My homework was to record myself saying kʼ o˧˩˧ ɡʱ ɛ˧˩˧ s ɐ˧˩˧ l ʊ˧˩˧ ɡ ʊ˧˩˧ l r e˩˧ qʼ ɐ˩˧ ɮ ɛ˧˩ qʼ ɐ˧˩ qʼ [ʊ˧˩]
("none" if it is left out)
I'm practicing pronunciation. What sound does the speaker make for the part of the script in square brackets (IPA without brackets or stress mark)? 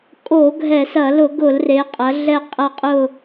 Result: ʊ˧˩